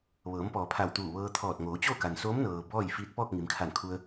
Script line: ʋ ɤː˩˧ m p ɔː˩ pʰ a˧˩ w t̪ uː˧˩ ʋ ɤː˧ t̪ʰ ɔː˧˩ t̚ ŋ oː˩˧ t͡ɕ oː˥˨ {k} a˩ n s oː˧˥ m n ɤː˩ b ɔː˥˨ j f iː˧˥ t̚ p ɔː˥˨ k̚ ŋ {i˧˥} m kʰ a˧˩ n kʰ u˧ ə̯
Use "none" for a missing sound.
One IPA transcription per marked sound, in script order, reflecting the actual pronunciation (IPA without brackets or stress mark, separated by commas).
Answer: k, i˩˧